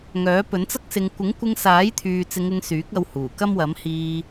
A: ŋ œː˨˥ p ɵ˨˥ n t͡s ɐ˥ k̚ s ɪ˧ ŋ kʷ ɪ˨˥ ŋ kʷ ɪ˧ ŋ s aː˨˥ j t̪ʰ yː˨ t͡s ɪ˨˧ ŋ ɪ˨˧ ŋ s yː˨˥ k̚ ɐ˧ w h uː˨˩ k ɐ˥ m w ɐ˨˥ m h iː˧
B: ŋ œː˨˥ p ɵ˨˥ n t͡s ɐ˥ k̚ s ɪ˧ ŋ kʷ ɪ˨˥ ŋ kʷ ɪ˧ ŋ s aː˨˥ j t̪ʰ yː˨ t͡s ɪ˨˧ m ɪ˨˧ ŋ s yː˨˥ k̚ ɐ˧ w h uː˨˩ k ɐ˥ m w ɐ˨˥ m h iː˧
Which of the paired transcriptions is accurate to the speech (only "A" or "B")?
A